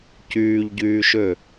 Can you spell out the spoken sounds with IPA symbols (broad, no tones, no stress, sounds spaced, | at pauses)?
c yː ʎ ɟ yː ʃ ø